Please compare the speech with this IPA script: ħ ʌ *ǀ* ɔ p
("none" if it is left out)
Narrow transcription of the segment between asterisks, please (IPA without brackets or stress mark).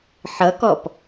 k